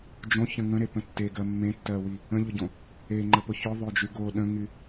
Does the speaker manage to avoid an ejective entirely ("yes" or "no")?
yes